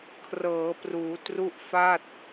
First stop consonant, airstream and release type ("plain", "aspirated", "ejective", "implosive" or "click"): aspirated